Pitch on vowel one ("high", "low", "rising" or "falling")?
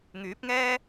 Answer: rising